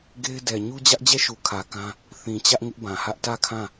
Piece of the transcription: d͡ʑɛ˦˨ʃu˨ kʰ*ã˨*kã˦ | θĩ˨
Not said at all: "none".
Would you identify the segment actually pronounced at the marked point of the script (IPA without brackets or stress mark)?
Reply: ä˨